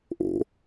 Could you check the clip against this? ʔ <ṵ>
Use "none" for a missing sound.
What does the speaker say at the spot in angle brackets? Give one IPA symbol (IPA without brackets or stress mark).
o̰